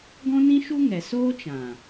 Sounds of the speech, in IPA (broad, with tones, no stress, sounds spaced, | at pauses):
ɡ ɔ̃˦ n ĩ˦ ʃ u˦ ŋ ɛ˨ s oː˦ t͡ʃ ã˨